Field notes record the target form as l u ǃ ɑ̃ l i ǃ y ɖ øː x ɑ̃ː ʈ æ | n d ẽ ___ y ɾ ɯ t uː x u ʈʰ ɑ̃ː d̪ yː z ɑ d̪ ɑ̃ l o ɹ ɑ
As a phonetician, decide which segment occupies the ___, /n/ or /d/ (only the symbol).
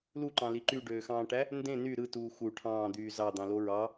n